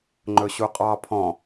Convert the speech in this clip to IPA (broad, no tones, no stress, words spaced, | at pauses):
ŋ͡ǃɵɕuqʼɑ pʰɔ̃